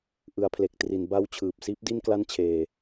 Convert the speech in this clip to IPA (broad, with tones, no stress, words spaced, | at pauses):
ʔɯ˩˦a̯pʰle˨˩k̚tri˩˦n ba˦˥wt͡ɕʰɯː˨˩p̚ siː˦˥p̚di˥˩n kla˥˩nt͡ɕʰeː˧